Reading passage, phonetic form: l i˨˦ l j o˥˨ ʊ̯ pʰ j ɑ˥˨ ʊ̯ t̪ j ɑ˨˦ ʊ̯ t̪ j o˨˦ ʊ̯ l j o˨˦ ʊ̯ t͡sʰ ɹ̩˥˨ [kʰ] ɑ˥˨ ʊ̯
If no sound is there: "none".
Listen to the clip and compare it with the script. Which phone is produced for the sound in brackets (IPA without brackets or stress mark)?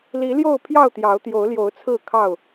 kʰ